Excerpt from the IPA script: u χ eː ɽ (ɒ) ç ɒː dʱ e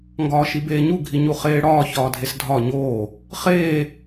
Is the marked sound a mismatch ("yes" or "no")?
yes